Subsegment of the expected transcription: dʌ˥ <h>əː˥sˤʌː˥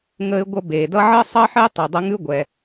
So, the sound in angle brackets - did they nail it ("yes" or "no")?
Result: no